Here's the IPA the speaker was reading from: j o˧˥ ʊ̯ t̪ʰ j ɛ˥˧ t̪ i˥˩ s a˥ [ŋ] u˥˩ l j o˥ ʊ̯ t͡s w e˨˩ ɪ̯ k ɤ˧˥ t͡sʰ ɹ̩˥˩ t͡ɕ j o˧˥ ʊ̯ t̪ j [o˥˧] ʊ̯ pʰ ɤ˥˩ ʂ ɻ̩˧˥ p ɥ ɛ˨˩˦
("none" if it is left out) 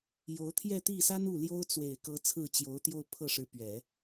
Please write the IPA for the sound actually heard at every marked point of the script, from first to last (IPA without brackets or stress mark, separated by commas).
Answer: n, o˥˧